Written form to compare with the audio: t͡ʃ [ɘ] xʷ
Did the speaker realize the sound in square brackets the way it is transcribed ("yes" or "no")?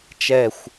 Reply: no